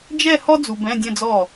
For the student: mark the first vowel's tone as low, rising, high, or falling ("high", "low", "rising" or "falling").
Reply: falling